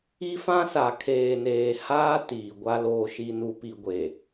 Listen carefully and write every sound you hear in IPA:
i˦ f ã˦ s a˨ kʰ eː˨ n eː˨ h aː˦ t iː˨ ɡʷ a˦ l oː˨ ʃ i˨ n u˨ p i˨ ɡʷ e˨

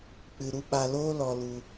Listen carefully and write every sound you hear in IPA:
k͡p ɨ˧ ɾ u˦ ɓ a˧ l oː˦ l ɔ˧ l u˧

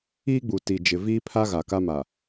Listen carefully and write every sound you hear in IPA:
iː˦ ɡ͡b u˨ t i˨ d͡ʒ ɪ˨ v iː˦ pʰ a˦ ɣ a˨ k a˦ m a˨

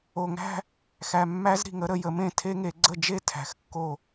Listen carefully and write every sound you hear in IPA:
o˨˩ ŋ æ̤˥˧ | x æ˨˩ mː æ˦˥ z ɾ i̤˨˩ ŋ ə˦˥ ɾ ə˩˧ j ə˩˧ m ẽ˥˩ tʰ e˦˥ ŋ e˩˧ ɡ͡ǀ ə˥˩ d͡ʒ e˥˧ tʰ æ̤˩˧ x kː o˥˩

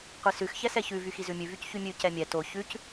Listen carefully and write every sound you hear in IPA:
qʷ i s ʉ x ç ɛ s ɛ ç ʉ v y x i z ʉ mʲ ʉ v y c ç y mʲ ʉ c ɛ mʲ ɛ t o ç ʉ c

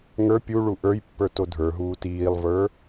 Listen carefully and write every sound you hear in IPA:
ŋ ə˞ pʲ u ɭ u ʔ ə˞ j pː ə˞ t o dʱ ə˞ ɦ uː t iː lˠ v ə˞

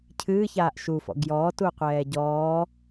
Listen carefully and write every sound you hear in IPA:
cʰ ɨː ç aː ʔ ʃ u f ɔ̰ ɡ j ɔː t u qʷ ɛː ɟ ɔː

